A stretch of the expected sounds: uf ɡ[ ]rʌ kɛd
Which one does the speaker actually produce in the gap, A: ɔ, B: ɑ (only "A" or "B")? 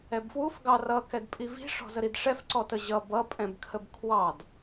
B